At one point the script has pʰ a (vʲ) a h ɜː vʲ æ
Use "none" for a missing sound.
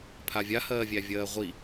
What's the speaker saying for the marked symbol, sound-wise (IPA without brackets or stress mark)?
vʲ